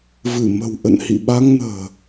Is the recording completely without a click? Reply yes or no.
yes